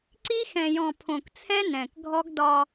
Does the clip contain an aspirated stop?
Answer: yes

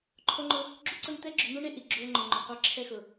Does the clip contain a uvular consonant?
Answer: yes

